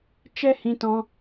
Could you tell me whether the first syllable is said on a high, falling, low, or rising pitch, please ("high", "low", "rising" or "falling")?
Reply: high